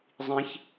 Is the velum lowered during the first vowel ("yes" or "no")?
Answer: yes